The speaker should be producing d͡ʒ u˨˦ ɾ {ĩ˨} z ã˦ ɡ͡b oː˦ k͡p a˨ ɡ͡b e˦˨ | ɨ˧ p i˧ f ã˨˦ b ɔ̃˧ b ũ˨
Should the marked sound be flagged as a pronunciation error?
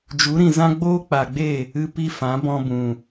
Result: no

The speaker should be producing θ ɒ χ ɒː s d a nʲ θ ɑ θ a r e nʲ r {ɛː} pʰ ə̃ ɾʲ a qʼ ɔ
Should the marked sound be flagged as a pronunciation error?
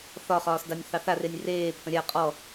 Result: yes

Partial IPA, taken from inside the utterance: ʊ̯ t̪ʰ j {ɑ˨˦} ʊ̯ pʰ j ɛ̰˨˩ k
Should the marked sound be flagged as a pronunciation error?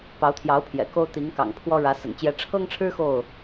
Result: no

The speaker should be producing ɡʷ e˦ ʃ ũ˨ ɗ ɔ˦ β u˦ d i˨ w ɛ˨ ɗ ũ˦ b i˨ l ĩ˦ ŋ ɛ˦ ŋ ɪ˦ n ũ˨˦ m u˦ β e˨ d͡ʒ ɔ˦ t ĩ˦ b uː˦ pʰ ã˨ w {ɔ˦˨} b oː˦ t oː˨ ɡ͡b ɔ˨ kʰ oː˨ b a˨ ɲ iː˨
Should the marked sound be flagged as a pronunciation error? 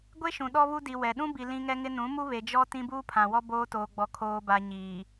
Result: yes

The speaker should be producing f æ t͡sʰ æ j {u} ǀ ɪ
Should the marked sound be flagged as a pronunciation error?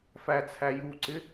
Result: no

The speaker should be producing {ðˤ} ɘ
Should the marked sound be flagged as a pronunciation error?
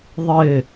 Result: no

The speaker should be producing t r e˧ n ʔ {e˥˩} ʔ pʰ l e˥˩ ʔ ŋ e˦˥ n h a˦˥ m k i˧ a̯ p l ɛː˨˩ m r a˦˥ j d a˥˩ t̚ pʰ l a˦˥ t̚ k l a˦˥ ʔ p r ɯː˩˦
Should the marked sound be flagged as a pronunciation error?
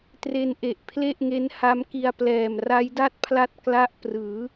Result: yes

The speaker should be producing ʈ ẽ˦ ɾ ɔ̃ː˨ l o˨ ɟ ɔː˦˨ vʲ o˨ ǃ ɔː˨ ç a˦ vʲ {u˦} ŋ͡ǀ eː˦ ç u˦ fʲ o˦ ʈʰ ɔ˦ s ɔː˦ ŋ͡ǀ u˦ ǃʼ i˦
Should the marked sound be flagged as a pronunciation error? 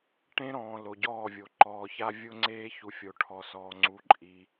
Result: yes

